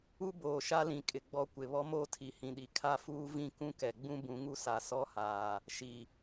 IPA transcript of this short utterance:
u˦ b oː˨ ʃ a˦ l ĩ˨ kʼ ɪ˨ ɡ͡b ɔ˦ kʷ ɪ˨ β ɔ˦ m oː˦ tʰ i˨ h ĩ˨ ɗ i˨ kʰ a˦ f uː˦ v ĩ˦ k ũ˦ k ɛ˨ ɡ͡b ũ˦ b ũ˨˦ ŋ u˦ s a˨ s ɔ˦ h aː˨ | ʃ i˨

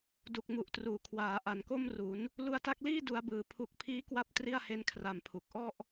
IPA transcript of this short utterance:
d u˨˩ k̚ m u˨˩ ʔ t r uː˩˦ kʰ w aː˩˦ ʔ a˨˩ n k o˥˩ m r u˩˦ n | l u˧ a̯ t a˦˥ k̚ l iː˥˩ d u˦˥ a̯ b ɯː˧ pʰ u˦˥ k̚ pʰ iː˦˥ k w a˦˥ p̚ t r i˥˩ a̯ h e˦˥ n kʰ r a˧ m pʰ u˨˩ k̚ ʔ ɔ˥˩ ʔ

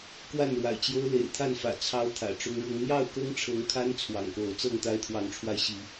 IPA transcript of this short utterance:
k w a˥˨ n ɻ w a̰˨˩ ɪ̯ t͡ɕ j o˦ ʊ̯ l ḛ˨˩ ɪ̯ t̪ʰ a˥˨ n f ä̰˨˩ t͡sʰ ɑ˦ ʊ̯ t̪ʰ ä̰˨˩ ʈ͡ʂ ʊ˦ ŋ ɻ ʊ˦ ŋ n̪ j ɑ˥˨ ʊ̯ k ɤ˦ ŋ ʈ͡ʂʰ ɤ˨˦ ŋ kʰ a˦ n t͡sʰ w ɑ̰˨˩ ŋ k o˨˦ ʊ̯ t͡s ɤ˥˨ ŋ t̪ a˦ ɪ̯ t̪ʰ w ɑ˨˦ ŋ ʈ͡ʂʰ w a˧ ɪ̯ ɕ i˨˦

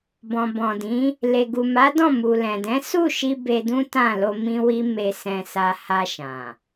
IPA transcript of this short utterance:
b ɔ̃˨ b ɔ̃˨ d ĩ˨˦ | l e˨ ɡ u˨ m a˨˦ d ɔ̃˦˨ m u˨ l ɛ̃˨ d ɛ̃˨˦ s u˦˨ ʃ i˧ b e˧ d ũ˦ t ã˦˨ l o˧ m ĩ˦ w i˦ m e˧ s ɛ̃˧ s a˧ h a˧ ʃ ã˨

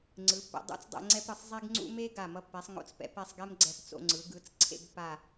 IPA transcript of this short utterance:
ŋ͡ǀ ɯ˩˧ pː ɛ̰˧ dˤ ṵ˥ t͡s dˤ ɛ̰˥˧ ŋ͡ǀ ɛ˥ p ɾ ɯ˧˩ sˤ zˤ e˥ ɡ ŋ͡ǀ ṵ˥ m e˥ ɡ a˧˩ m ʌ˧ pː ɛ˩˧ sˤ ŋ o̰˧˩ t͡s p ɛ̰˧ p ɛ˥˧ sˤ ɡ ɛ˥ m ɡ͡ǀ ɛ˧ p t͡s o̰˧ ŋ͡ǀ ɯ˩˧ ɡ ɯ˩˧ t͡s ǀʰ ḛ˥˧ ɡ p a˥˧

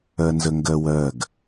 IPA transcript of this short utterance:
ɜ n z ə ŋ ɡ ɜ w ɜ ɡ

